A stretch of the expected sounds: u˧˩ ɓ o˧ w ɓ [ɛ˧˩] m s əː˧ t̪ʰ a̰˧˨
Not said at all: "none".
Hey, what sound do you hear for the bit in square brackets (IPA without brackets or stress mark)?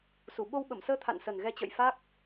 ə˧˩